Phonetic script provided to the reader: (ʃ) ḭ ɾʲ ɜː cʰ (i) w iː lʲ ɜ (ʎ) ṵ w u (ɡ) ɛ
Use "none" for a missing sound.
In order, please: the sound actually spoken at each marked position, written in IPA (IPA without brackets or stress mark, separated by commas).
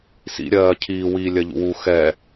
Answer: s, iː, ʎ, x